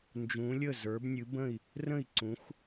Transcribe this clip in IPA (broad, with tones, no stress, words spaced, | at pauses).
nd͡ʒũ˨˦lʲə˥˨ zə˞˨˦bnʲɨ˨˦bə̃˥˨i̯ | rə̃˥˨i̯ ǀũ˨˦xʷ